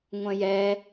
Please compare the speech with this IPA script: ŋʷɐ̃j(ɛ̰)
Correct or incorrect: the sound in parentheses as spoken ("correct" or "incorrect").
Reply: incorrect